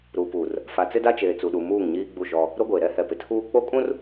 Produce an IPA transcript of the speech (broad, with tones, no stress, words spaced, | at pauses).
ɾu˨pu˨r | fa˨t͡sɪ˦da˦t͡ʃeː˨ t͡su˨ɗu˨ muː˦˨ŋɲiː˦ɡ͡bu˦˨ʃɔ˦ | ɾo˦ɡʷe˨ ɾɛ˦hɛ˨pɪ˨tʰuː˦ k͡po˦kʼũ˦r